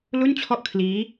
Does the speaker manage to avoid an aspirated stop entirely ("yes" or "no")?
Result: no